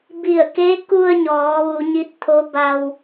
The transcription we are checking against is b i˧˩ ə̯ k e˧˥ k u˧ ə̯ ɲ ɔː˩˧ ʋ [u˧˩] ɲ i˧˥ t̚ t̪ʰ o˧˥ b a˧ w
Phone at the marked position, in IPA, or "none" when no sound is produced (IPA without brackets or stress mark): u˩˧